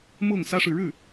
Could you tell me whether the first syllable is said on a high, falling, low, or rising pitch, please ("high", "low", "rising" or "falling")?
falling